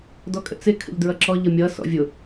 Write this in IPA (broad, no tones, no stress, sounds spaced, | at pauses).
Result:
d ɔ kʼ ə̰ t͡s ɪ kʰ ə̰ ʎ d ɹ ʌ ǁ ɔ ʎ ʌ mʲ ʌ s ɔ̰ vʲ ʊ